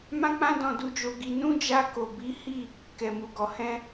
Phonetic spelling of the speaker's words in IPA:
mã˦k͡pã˦ dɔ̃˦du˦d͡ʒo˦ɡi˦ nũ˦d͡ʒa˧ ko˨bi˨˦hi˦˨ | kɛ˨mu˨ɡɔ˨ hɛ̃˧

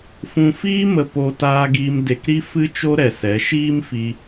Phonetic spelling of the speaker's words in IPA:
fũ˧fiː˦ mə˧ po˧ taː˧ɡiː˧m de˧kɾi˦ fɨ˦t͡ʃo˦ɾɛ˨sɛ˨˦ ʃiː˦mfi˧

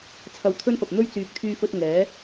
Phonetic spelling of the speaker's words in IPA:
t͡sʰɐ˧wt̪ʰɵ˥nfɐ˨p̚n̪ɵ˥ɥ t͡syː˨k̚t̪ʰyː˧fɵ˧t̚ ŋɛː˨˥

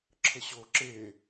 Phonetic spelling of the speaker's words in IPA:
ǁʰəɕo ǁe

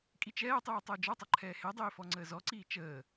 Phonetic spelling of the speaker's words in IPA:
kʼit͡ʃɛːtˤiː tˤəːd͡ʒɔtˤʌ ǃʰɛːhedˤiː fɔŋ͡ǀəːzɔǀiː t͡ʃəː

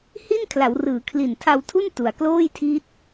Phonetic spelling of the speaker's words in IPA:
hi˥˩nkʰla˩˦wrɯː˩˦ kʰli˨˩ntʰa˧wtʰu˥˩n tu˨˩a̯ kloː˥˩jtʰi˦˥t̚

